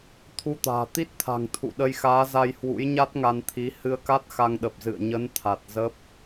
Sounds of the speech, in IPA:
t̪ʰ u˧ t̪ a̤ː˨˩ t̪ i˦˥ t̚ t̪ʰ a̤˨˩ ŋ t̪ʰ ṵ˧˨ ɗ ə˧ j x aː˨˦ z a˧ j h w ṵ˧˥ j ɲ a˦˥ t̚ ŋ a˧ n t̪ʰ i˨˦ h ɨ˧ ə̯ k a˦˥ t̚ x a˧ ŋ ɗ ə˨˩ p̚ z ɨ̰˧˨ ə̯ ɲ ə˨˦ n t̪ʰ a˨˩ t̚ z ə˦˥ p̚

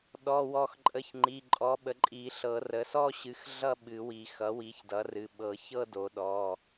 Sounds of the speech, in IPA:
ɗ ɔ˩˧˩ w ɔ˨˩˦ x ǃʼ ə˩˧˩ ç ŋ͡ǃ i˩˧˩ ǃʼ ɔ˩˥ ɓ ə˩˥ ǃʼ i˨˩˦ ɬ ɤ˨˩˦ r ə˩˥ s ɔ˥˧ ɕ ɨ˩˥ x ɮ ʌ˥˧ ɓ ɨ˨˩˦ w i˨˩˦ x ʌ˩˥ w i˩˥ ç d ʌ˩˥ r ɨ˩˧˩ ɓ ɤ˨˩˦ ç ɤ˥˧ d o˨˩˦ ɗ ɔ˩˧˩

